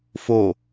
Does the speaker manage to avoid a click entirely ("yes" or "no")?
yes